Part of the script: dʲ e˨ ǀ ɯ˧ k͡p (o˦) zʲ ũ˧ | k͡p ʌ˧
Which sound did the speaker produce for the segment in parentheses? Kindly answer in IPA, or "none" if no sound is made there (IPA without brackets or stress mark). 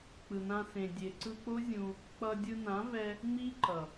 o˦